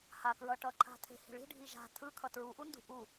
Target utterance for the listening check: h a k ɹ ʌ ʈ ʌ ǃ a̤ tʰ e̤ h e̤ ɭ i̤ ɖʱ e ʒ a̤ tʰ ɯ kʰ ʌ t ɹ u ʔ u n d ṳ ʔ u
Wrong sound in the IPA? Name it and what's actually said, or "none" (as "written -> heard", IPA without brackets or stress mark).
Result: e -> i